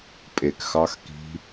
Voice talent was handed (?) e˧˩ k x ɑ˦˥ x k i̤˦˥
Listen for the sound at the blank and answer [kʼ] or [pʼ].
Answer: pʼ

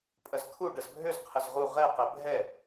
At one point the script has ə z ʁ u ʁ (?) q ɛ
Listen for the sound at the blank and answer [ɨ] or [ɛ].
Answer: ɛ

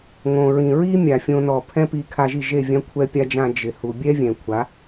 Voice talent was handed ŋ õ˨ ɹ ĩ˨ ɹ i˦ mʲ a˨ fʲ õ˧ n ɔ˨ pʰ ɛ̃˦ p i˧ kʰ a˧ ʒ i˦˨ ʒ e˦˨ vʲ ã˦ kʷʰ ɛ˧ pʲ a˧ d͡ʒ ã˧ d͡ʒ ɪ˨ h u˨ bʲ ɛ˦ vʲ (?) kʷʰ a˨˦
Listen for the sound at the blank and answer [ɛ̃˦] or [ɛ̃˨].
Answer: ɛ̃˨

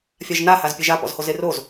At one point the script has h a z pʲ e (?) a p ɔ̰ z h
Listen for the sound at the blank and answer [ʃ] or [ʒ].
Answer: ʒ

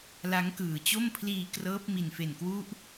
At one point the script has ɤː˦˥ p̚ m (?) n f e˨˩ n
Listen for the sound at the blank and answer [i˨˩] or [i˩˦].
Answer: i˨˩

